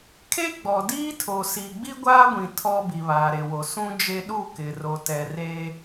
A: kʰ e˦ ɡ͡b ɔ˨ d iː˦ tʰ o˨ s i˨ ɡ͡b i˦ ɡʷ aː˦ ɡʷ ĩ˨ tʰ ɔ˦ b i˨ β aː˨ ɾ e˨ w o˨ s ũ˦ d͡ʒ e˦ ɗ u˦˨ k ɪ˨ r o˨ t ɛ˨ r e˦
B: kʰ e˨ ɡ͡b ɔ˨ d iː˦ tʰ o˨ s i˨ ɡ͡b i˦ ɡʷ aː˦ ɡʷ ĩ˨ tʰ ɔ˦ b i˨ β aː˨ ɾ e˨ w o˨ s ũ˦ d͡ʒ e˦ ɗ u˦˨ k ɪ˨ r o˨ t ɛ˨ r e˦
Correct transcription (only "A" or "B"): A